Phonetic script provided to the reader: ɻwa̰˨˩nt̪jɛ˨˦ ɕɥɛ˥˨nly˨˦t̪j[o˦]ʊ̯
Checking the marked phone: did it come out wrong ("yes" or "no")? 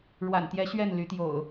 yes